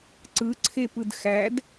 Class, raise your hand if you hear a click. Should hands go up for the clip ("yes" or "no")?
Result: yes